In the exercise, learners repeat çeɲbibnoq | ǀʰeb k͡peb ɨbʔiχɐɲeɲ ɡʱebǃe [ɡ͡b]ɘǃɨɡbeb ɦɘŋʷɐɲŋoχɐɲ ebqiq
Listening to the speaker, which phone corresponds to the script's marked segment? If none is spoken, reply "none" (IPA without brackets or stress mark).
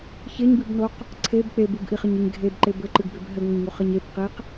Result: b